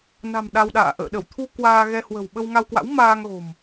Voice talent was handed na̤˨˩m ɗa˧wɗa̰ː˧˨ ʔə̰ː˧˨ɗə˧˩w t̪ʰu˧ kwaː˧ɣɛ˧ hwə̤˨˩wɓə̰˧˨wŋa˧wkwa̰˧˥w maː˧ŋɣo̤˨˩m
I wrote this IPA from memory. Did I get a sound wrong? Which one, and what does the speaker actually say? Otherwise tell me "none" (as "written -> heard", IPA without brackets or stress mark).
ə̰˧˨ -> ə˧